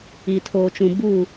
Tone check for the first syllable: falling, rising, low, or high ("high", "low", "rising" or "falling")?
low